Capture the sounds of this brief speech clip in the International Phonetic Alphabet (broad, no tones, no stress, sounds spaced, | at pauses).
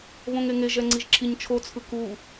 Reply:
β õ ŋ e ŋ e ʒ ɛ ŋ͡ǀ i ʒ ǁʰ i ɲ t͡ʃʰ o t͡sʰ ɯ k u